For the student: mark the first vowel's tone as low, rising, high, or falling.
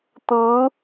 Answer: rising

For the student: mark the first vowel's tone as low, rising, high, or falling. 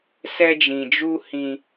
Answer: high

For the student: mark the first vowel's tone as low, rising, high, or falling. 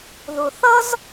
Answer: low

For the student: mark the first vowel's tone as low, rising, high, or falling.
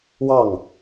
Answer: falling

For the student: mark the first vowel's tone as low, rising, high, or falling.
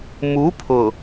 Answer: rising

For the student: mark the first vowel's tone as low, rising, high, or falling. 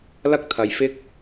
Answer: high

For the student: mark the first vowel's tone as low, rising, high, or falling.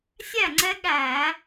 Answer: falling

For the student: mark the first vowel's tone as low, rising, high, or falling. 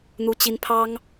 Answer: high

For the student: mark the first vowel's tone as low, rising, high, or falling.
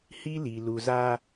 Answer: high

